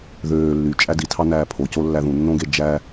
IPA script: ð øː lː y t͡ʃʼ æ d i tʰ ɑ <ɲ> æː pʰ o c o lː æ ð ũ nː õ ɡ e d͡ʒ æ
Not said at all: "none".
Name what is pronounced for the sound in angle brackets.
n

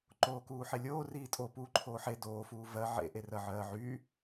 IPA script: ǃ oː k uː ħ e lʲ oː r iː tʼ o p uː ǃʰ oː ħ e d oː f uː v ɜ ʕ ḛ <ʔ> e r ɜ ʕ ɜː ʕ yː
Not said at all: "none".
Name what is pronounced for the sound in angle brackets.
ʔ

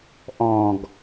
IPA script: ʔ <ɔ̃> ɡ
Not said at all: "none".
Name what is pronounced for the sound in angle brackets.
ɔ̃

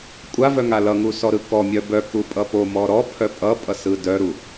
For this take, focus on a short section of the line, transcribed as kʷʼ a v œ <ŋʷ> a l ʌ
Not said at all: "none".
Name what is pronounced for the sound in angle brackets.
ŋ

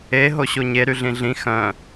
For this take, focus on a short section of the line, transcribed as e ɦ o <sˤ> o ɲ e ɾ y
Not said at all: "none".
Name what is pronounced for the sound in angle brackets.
ɕ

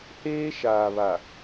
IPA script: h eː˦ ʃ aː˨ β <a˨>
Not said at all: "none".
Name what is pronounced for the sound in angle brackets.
a˨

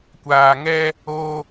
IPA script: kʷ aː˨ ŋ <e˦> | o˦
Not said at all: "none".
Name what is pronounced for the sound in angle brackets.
ɛ˦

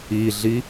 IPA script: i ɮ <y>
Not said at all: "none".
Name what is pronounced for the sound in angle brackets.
i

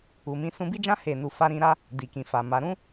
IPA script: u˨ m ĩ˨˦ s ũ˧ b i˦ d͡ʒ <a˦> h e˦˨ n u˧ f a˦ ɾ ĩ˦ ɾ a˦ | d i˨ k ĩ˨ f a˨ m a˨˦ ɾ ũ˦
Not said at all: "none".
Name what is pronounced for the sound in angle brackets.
ã˦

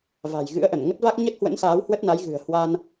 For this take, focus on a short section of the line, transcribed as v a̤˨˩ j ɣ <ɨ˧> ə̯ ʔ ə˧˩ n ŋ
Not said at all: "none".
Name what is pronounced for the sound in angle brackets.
ɨ̰˧˥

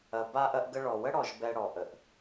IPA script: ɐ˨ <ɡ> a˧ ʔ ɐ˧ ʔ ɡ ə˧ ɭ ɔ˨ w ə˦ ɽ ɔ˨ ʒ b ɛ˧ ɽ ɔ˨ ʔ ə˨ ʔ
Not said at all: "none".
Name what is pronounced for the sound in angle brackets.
b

